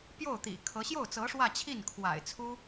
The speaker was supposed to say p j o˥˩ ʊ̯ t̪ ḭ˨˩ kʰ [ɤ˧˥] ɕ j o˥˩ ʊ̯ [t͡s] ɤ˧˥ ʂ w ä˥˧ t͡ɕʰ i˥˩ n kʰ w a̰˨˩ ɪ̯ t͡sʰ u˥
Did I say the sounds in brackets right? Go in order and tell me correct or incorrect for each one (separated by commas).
correct, correct